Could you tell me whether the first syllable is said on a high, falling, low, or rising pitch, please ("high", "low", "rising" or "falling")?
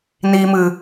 low